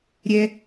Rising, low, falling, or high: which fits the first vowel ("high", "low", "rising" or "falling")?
high